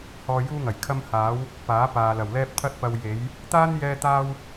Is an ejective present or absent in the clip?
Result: absent